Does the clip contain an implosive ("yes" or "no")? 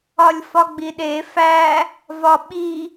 yes